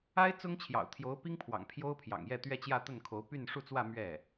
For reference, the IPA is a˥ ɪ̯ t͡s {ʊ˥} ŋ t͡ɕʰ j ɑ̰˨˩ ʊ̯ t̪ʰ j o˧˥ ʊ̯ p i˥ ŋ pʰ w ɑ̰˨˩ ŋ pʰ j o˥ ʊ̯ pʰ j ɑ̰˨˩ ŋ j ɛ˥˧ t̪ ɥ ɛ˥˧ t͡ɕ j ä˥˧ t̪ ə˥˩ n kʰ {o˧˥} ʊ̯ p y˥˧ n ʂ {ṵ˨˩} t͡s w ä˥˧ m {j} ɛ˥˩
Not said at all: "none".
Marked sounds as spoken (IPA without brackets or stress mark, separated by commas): ʊ˥, o˧˥, u˥˧, ɥ